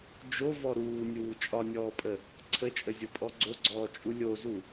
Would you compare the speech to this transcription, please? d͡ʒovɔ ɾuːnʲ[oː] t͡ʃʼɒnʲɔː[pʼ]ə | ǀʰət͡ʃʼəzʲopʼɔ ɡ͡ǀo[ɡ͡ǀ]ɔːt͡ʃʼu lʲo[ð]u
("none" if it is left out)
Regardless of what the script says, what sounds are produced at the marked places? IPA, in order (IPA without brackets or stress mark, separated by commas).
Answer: uː, pʼ, ɡ͡ǀ, z